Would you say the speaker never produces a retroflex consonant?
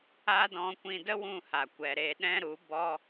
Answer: yes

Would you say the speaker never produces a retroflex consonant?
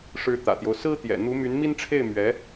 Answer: no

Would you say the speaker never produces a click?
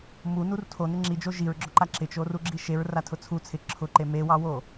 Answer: no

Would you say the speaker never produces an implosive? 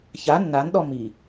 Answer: no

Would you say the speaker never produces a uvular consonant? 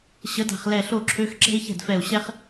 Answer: no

